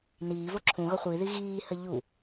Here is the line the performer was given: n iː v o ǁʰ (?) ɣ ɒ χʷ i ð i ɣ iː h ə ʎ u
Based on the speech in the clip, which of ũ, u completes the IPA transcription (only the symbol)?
ũ